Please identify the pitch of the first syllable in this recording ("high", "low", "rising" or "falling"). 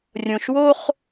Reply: low